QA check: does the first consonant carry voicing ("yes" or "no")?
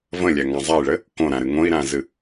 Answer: yes